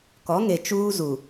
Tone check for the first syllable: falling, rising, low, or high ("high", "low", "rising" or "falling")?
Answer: rising